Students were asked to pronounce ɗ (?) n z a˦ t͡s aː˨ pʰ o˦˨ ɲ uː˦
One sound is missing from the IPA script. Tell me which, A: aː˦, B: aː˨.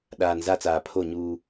B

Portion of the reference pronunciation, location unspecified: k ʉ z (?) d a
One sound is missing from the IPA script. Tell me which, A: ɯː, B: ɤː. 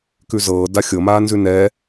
B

